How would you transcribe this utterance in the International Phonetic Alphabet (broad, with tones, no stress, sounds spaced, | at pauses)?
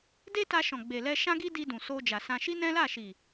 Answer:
d e˦ t a˧ ʃ ɔ̃˨ ɡ͡b e˨ l ɛ˧ ʃ ã˦ ɡ i˦ d i˧ d ũ˨ s o˧ d͡ʒ a˨ s ã˧ ʃ i˦ n ɛ̃˦ l a˦˨ ʃ i˨